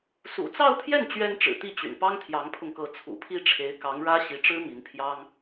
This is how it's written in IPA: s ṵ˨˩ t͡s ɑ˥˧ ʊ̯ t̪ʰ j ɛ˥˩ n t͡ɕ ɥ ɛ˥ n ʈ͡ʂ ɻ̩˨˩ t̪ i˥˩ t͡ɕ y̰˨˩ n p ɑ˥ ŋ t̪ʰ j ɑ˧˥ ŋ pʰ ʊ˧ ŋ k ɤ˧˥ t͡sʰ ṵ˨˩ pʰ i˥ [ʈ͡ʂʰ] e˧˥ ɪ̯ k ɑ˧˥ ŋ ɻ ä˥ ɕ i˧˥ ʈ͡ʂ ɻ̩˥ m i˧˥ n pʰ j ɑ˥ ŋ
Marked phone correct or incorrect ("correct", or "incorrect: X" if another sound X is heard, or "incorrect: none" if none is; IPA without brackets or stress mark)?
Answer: correct